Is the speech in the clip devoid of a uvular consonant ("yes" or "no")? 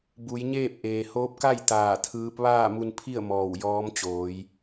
yes